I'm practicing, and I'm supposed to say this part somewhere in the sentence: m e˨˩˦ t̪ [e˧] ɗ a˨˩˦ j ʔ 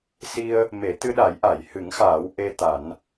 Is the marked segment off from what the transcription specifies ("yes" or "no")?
yes